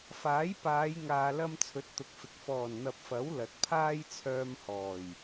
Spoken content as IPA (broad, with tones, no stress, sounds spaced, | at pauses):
f aː˨˥ j p aː˨˧ j ŋ aː˨ l ɐ˥ m t͡sʰ ɵ˨˥ t̚ t̪ ʊ˨ k̚ f ɪ˨ k̚ f ɔː˨˩ n n̪ ɐ˨ p̚ f ɐ˨˥ w l ɐ˨ t̚ pʰ aː˥ j t͡sʰ œː˧ m h ɔː˨˩ j